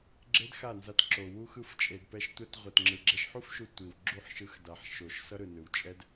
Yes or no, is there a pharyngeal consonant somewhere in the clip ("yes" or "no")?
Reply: yes